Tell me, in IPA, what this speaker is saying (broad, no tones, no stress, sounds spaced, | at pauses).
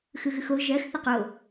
x ɯ ɣ ɯ x o ʒ ɜ x θ ə q o